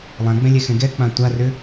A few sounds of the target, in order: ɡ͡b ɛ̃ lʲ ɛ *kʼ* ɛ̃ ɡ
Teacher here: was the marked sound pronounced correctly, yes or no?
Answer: no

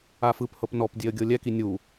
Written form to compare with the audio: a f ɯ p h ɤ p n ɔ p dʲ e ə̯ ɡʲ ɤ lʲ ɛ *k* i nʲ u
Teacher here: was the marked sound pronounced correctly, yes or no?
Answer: yes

